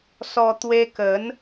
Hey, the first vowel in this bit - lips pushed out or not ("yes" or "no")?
yes